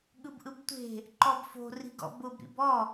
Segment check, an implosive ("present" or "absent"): present